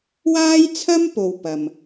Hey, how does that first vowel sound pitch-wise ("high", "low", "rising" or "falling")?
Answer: high